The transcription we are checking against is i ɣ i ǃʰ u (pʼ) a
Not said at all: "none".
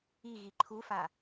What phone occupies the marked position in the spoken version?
f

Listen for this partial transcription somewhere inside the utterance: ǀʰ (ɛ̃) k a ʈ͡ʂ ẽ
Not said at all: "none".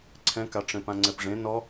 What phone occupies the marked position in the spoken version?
ɛ̃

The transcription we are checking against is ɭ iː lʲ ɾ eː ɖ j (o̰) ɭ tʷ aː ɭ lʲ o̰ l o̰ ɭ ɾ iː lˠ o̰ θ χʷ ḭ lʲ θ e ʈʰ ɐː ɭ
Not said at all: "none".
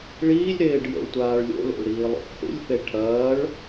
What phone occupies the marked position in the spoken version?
o̰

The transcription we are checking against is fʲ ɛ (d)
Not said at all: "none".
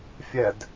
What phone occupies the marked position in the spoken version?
d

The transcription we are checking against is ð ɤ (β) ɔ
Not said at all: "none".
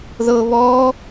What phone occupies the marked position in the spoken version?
β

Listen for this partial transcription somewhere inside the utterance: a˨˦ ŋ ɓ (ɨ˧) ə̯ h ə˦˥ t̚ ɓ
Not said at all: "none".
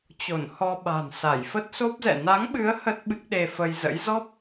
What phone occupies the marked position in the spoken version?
ɨ˨˦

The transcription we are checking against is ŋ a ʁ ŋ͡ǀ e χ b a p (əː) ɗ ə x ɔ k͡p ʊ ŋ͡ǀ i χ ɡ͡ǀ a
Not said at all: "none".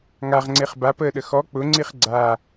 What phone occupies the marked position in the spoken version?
əː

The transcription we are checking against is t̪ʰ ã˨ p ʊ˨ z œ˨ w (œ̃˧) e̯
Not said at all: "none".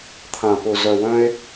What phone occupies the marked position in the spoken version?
œ̃˧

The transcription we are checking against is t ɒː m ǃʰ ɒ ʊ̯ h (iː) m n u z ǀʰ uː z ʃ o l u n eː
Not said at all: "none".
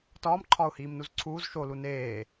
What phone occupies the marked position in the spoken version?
iː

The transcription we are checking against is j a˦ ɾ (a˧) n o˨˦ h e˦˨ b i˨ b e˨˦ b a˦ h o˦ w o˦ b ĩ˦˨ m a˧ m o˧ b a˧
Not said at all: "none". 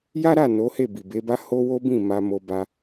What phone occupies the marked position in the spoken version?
a˦˨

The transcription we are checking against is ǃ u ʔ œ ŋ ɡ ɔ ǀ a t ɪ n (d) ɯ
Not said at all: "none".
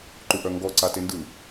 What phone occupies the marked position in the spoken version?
d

